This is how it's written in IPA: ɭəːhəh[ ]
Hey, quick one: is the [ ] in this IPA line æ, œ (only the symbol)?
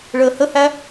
æ